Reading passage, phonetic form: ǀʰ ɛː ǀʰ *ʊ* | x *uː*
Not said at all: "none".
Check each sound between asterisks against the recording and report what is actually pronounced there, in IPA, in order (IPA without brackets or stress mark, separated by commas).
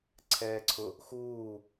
ʊ, uː